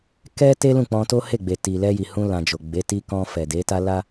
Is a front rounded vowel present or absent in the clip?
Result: absent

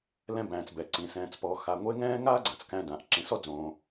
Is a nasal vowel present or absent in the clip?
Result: present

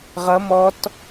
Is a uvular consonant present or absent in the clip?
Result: present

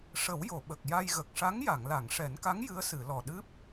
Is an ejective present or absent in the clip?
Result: absent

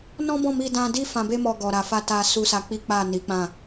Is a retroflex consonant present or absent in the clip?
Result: absent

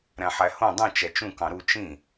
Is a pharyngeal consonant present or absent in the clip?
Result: present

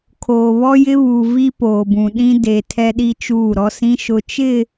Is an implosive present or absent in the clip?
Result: present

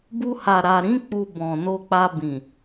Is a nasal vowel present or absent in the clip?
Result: present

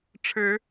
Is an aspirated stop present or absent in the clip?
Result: present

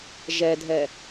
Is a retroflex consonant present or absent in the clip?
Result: absent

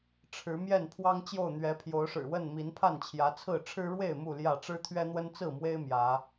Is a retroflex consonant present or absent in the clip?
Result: present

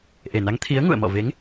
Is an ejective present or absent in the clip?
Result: absent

